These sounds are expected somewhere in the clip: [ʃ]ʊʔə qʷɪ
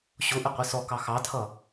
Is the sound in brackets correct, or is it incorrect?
incorrect